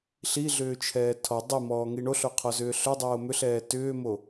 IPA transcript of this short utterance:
ɬ i ɮ ʏː t͡ʃʰ ɛː tʰ ɔ dˤ i m ɔː ŋ i ɳ o ɬ o qʰ ɔ z ʏː ɬ ʏ dˤ oː m ʏ ɬ ɛː t ʏː m o

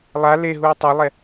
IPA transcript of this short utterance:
lˠ a l e ɦ u o̯ tˤ ɐ lˠ ɛ

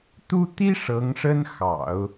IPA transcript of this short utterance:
t̪ u˥ t̪ i˥ ʂ ɤ˧˥ ŋ ʂ ə˥ n x ɑ̰˨˩˦ ʊ̯

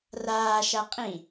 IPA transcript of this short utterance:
r aː ʃ a qʼ ĩ

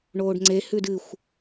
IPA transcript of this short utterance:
ɳ oː ɖ ŋ͡ǀ e h ʉ d ɨ xʷ

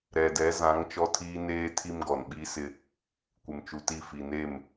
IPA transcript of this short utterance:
ɾ ɛ˨ d ɛ˨˦ z ã˨˦ ŋ t͡ʃ ɔ˦ tʰ iː˦ n eː˦ tʰ i˦ m ɡ ɔ˨ n ɓ i˦ s ɪ˦ | kʷ ɪ˨ m t͡ʃ u˨ t i˦˨ f i˨ n e˦˨ m

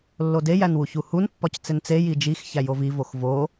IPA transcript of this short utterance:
lː o d e j æ n w u ç u h u n pː ɒ c t͡s e n t͡s e j i d͡ʒ i x ç æ j o v i v o x v o

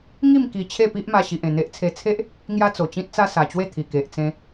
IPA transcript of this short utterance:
ŋ i˥˧ m k i˧ t͡ɕʰ e˥˧ p i˦ ʔ m a˧ ɕ i˨ ʔ ẽ˨˩ n̪ e˦ ʔ t͡sʰ e˧ t͡sʰ e˦ ʔ | ŋ j a˦ t͡s o˨˩ t͡ɕ ĩ˦ t̚ t͡s a˦ s a˨˩ t͡ɕ w e˥˧ t̪ʰ i˨˩ k e˨ ʔ t͡s ẽ˧

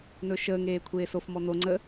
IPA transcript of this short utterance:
n ɵ ʃ əː ŋ eː kʷʰ eː s o f m ɔ n̪ o ŋ͡ǀ ə

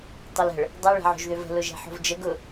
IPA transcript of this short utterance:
tˤ ʊ l ə̤ ɭ | dˤ ø ɭ ɛ̤ ʕ o̤ ʒ ð ø v ə̤ l ʊ ʒ ɛ̤ ħ o̤ v d͡ʒ ə ɡ ʊ

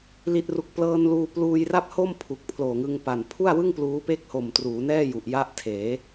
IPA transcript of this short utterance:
l i˨˩ t̚ r u˨˩ k̚ p l ɤː˧ n l uː˧ p l uː˧ j r a˥˩ p̚ h o˥˩ m pʰ u˨˩ k̚ pʰ l oː˨˩ ŋ ɯ˧ ŋ p a˨˩ n pʰ u˥˩ a̯ w ɯ˥˩ ŋ p l uː˦˥ p e˥˩ k̚ h o˨˩ m t r uː˩˦ n ɛː˥˩ j u˨˩ ʔ j a˥˩ ʔ tʰ eː˩˦

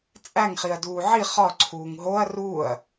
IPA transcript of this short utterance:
t͡sʼ æ ŋ χ i ɐ̯ d uː ʕ i χ ɒ ǀʰ uː ŋ ɦ o ɐ̯ r uː ɐ̯

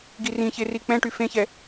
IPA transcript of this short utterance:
ɡ i r ĩ ç e r i k͡p ɛ̃ ʈ y f ẽ ç ɛ

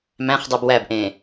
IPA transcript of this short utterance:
m æ̃ χ dˤ u b w æ b ʔ ẽː

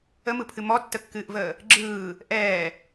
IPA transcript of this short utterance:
ə m ɯ pʰ ɨ m ɔ tː ə kː ɨː ʔ v əː | ɡ͡ǁ ɯː | ʔ ɛː

